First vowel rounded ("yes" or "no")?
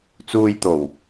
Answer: yes